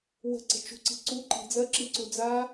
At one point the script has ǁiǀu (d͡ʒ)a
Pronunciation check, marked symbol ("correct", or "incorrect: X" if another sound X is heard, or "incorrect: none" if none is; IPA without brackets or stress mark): incorrect: d͡z